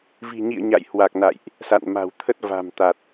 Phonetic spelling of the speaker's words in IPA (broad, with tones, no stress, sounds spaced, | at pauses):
v i̤˨˩ ɲ ḭ˧˨ ə̯ ɲ a̰˧˨ j h w a˨˩ k̚ n a̰˧˨ j ʔ | s a̰˧˨ n m a̤˨˩ w t̪ʰ ə˦˥ t̚ v a̤˨˩ m t̪ a˨˩ t̚